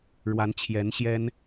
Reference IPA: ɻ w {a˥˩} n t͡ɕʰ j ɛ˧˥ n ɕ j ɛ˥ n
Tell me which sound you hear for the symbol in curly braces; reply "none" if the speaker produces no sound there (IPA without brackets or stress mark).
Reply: a˧˥